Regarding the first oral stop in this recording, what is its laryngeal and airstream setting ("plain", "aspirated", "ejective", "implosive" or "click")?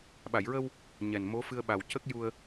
implosive